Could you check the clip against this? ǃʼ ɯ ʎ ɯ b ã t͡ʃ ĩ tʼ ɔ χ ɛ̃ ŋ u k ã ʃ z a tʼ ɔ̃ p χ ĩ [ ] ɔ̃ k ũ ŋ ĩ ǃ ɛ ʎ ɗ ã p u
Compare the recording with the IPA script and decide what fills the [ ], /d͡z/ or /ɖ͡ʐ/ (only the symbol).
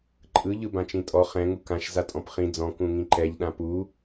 d͡z